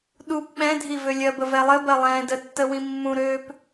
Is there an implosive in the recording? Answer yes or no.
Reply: yes